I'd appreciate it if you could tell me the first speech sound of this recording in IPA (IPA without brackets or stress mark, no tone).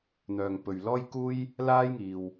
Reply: n̪